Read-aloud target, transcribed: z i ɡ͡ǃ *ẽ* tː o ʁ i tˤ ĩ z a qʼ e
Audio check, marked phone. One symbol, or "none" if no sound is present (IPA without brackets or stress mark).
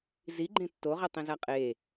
ẽ